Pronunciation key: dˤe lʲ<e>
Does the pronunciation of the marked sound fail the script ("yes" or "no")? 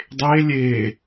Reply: no